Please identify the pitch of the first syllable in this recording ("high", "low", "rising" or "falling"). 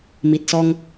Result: low